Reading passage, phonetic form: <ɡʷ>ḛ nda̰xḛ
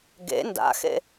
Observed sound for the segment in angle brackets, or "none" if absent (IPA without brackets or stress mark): ɡ